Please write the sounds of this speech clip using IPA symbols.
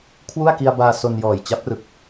kʰ w u˥˩ a̯ k i˧ a̯ b aː˧ s o˧ n j ɔː˨˩ j t͡ɕ a˦˥ p̚ r ɯ˨˩ k̚

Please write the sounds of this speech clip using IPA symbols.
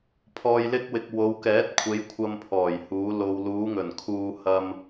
pʰ ɔː˨ j l ɪ˧ k̚ w ɪ˨ k̚ w o˨˧ w k ɛː˨˥ t̚ kʷʰ e˨˧ j kʷʰ ɐ˧ m pʰ ɔː˨˩ j h uː˨˧ l o˨ w l uː˨˧ ŋ ɵ˨˩ n kʰ uː˧ h ɐ˧ m

